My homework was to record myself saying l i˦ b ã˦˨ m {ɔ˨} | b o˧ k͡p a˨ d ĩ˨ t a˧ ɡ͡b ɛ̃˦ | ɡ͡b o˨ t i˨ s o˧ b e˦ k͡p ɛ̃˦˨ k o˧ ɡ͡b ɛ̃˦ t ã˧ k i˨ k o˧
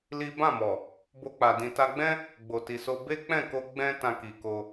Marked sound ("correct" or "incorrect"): correct